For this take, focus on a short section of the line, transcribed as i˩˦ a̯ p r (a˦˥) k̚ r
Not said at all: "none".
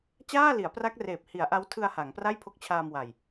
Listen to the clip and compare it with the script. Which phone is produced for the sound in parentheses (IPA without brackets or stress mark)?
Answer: a˦˥